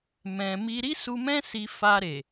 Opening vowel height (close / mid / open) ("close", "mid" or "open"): mid